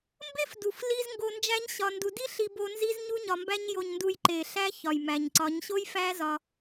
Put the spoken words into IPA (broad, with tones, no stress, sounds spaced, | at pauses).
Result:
m b e˦ f d u˨ f l i˧ z ŋ ɡ o˧ n d͡ʒ æ˦ ɲ ɕ ɒ˧ n d u˧ d i˦ ɬ i˧ b o˧ n z i˦ z ɲ u˦ ɲ ɒ˧ m b æ˦ ɲ j o˧ ɲ n d u˧ j ǃ e˨ ɬ æ˦ ç ɒ˨ j m æ˨ ɲ ǀ ɒ˨˦ ɲ ɕ o˦ j f æ˦ z ɒ˧